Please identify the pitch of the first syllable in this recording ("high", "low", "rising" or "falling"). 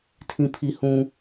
low